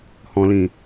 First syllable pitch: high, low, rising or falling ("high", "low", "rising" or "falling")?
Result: low